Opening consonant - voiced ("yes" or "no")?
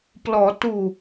no